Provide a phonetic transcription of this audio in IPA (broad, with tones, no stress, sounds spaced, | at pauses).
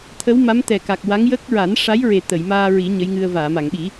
t̪ʰ ə˧˥ w m a˧˥ m t̪ ɛ˨˩ k a˨˩ k̚ w a˧˥ ŋ j ə˦˥ k̚ ɹ a˨˩˦ n ʂ a˧˥ j ɹ e˨˩ t̪ ə˨˩˨ j m aː˧ ɹ i˨˩˦ ɲ ə˧˥ j ŋ ɨ˧ ə̯ v aː˨˩˨ m a˨˩˨ ŋ ɓ i˨˩˦